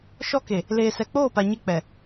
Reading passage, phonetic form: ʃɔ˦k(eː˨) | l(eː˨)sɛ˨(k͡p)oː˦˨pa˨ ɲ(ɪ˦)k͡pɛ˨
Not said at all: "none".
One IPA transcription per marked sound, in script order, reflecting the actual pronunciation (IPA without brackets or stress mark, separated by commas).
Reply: e˨, eː˨, k͡p, ɪ˦